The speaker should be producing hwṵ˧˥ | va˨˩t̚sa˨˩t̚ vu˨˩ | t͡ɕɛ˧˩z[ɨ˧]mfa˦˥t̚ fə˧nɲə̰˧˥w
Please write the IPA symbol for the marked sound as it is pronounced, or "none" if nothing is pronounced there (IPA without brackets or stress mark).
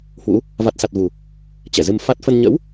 ɨ˧